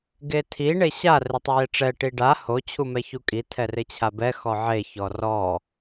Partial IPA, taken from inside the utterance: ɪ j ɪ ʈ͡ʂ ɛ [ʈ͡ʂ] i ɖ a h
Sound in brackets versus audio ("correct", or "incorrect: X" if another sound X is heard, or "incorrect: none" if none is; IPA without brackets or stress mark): incorrect: ʈ